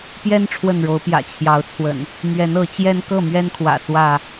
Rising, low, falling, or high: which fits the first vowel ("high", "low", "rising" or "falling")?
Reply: high